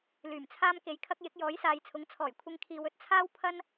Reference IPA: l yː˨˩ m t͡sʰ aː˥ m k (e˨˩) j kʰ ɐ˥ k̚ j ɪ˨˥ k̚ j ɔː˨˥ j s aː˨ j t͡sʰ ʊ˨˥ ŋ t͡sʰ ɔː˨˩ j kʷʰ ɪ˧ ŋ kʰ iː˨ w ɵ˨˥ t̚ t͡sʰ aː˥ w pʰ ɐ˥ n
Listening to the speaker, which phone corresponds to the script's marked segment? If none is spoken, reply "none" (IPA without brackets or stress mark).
e˨